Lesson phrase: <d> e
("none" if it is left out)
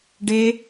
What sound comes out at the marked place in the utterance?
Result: ɖ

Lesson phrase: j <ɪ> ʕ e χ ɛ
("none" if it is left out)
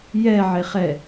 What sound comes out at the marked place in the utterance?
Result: ɛ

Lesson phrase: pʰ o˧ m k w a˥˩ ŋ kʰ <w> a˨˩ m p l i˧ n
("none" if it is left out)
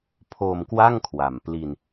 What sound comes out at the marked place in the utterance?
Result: w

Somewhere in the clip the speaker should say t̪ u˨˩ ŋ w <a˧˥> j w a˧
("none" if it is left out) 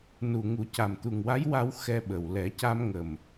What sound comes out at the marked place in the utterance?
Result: a˧˥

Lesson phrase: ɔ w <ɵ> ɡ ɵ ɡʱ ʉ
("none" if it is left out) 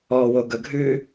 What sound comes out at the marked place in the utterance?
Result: o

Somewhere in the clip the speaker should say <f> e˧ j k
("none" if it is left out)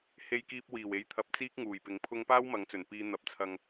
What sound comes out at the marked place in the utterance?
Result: h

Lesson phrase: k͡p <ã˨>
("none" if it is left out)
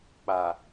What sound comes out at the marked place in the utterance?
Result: a˨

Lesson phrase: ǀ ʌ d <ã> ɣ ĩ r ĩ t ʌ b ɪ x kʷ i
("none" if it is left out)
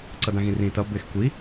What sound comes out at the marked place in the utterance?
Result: ã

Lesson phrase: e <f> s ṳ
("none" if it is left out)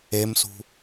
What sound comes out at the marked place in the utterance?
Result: m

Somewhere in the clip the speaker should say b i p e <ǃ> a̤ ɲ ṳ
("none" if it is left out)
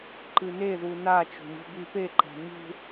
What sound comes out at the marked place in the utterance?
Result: ǃ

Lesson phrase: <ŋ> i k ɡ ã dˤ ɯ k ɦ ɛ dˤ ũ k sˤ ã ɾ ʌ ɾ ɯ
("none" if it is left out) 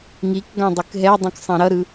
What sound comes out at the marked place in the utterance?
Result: ŋ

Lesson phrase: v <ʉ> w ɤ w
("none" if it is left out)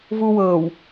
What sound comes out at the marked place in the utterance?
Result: u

